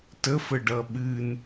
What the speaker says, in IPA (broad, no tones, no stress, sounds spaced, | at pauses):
t ə f ə ɖ ʌ ɓ ɨ n